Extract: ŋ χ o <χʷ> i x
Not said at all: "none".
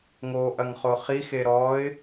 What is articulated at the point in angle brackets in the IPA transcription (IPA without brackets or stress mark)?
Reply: χ